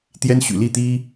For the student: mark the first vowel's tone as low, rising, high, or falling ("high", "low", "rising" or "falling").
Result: high